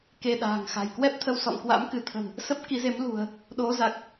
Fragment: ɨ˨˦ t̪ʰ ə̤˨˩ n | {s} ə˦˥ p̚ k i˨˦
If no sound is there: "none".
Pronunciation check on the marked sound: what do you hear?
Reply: s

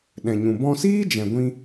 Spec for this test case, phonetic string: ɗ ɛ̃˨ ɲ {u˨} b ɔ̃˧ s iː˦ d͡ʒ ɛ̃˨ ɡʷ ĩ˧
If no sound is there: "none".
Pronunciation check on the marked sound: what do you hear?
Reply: ũ˨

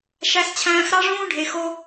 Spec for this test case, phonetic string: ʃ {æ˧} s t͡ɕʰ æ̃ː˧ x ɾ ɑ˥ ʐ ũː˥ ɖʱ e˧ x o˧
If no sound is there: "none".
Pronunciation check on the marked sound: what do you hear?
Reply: æ˧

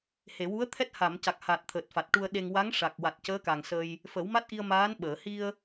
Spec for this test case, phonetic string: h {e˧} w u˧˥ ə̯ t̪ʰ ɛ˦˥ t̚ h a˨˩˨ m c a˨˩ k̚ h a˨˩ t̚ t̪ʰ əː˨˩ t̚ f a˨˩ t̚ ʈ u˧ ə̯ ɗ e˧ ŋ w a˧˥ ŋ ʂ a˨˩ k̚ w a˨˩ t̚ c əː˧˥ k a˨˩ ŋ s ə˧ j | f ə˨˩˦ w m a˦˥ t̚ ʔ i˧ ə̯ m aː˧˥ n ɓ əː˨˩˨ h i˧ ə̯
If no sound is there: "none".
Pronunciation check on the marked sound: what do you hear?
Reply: e˨˩˨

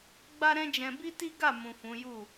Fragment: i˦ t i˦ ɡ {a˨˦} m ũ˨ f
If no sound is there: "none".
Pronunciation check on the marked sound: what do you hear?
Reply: a˦˨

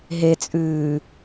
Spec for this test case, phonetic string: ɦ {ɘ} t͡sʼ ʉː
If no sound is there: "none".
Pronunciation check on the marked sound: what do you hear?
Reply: e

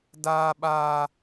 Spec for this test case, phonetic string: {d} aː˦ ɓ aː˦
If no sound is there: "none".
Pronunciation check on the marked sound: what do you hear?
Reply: d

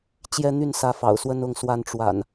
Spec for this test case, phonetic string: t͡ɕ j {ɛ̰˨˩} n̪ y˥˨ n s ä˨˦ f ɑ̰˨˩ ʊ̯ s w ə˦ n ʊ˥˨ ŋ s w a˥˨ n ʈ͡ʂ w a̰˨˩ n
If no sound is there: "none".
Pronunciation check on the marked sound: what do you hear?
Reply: ɛ˦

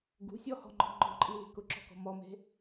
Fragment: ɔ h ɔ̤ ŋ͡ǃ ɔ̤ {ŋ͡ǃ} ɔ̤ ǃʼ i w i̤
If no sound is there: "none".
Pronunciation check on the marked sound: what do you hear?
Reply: ŋ͡ǃ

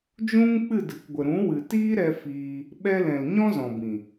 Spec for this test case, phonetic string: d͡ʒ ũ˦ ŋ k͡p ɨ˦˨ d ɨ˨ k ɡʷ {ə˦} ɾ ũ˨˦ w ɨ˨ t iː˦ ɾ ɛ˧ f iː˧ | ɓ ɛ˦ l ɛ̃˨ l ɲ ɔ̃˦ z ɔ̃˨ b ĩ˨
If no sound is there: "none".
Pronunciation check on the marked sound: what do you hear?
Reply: ə˨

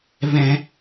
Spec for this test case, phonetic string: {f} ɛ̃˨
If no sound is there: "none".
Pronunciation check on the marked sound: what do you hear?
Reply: v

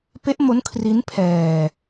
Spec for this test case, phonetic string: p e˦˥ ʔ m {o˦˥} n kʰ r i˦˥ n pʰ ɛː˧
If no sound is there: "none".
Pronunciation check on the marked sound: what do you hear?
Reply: o˦˥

